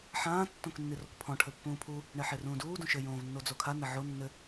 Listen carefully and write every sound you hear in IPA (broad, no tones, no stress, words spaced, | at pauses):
ħãː tːõknːirokpʰɔ̃ ʈʰɘpːũːpʰu | ɳeħerũːduː dũʃɘ jõːvnːod͡zokʰa nɐʕo nːɘ